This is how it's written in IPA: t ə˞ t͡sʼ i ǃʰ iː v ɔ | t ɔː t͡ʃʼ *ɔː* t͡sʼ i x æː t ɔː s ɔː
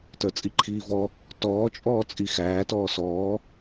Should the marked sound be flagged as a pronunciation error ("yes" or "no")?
no